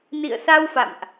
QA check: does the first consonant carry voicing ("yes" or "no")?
yes